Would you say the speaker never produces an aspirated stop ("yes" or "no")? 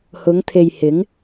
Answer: no